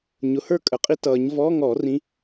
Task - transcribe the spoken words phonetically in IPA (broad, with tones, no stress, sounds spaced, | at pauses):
ɲ ʊ˩˧˩ h ə˞˥˧ kʼ ə˩˧˩ qʼ i˥ t ʌː˨˩˦ ɲ v ɔː˧˥˧ ŋ ɔ˨˩˦ r ĩ˧˥